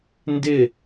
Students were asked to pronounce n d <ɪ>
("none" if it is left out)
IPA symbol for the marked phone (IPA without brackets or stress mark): ɪ